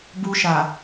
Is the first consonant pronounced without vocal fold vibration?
no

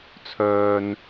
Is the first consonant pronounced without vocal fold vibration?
yes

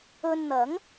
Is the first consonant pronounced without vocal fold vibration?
no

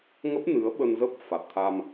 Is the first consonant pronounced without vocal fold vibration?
no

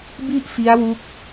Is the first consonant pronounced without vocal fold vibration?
no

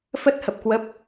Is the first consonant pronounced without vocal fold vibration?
yes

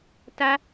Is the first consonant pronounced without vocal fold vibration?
yes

